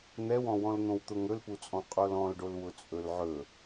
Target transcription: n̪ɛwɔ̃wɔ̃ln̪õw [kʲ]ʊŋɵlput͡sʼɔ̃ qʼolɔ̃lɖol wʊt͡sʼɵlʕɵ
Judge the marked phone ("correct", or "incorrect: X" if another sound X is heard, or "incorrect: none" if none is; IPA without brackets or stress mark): incorrect: t̪